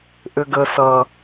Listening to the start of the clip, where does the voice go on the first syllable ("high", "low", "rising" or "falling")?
high